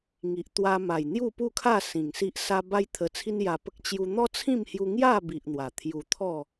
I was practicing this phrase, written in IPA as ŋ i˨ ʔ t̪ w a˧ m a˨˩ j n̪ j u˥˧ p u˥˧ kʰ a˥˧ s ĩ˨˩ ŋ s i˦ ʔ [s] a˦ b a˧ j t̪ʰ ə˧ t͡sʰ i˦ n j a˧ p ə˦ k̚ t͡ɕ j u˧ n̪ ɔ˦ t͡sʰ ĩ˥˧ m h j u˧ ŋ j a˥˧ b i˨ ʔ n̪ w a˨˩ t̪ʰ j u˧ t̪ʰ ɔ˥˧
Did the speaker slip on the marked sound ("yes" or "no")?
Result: no